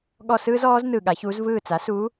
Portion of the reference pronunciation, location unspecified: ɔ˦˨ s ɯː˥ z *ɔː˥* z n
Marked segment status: incorrect: ɔː˧˥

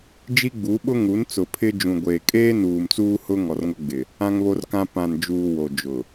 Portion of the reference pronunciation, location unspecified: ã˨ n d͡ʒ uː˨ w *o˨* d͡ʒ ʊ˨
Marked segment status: correct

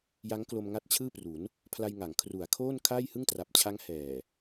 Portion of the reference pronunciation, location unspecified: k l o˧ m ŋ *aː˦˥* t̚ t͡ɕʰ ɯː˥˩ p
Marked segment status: incorrect: a˦˥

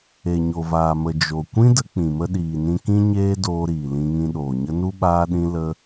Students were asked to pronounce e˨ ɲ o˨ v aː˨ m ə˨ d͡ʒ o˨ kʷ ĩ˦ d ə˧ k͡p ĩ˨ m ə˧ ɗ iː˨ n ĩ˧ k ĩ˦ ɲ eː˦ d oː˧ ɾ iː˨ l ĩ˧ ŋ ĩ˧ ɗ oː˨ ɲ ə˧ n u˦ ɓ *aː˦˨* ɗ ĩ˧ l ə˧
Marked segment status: incorrect: aː˧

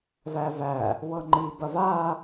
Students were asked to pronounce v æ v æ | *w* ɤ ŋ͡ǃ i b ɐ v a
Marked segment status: correct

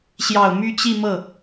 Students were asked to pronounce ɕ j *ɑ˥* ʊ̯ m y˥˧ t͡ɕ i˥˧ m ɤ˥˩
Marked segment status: incorrect: ɑ˨˩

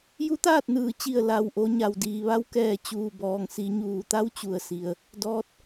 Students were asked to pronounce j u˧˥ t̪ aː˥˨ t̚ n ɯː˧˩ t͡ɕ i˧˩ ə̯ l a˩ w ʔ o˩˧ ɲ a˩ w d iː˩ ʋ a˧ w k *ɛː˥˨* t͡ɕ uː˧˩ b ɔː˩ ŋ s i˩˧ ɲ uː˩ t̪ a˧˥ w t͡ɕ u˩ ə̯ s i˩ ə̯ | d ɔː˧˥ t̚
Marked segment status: incorrect: ɛː˧˩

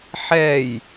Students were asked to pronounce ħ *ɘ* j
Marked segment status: incorrect: ɛ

